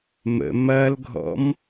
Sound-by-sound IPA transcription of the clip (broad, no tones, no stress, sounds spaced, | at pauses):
m ə̰ m ɐ l ɡʱ ɔ̰ m